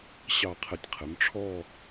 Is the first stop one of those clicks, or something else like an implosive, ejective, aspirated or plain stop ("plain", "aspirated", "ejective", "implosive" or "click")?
aspirated